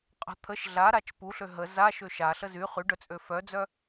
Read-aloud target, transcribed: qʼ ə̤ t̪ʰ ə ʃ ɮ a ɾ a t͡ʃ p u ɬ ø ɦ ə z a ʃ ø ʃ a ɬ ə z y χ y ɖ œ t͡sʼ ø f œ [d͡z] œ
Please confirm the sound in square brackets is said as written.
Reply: yes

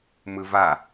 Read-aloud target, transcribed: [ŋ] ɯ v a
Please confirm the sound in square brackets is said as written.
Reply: no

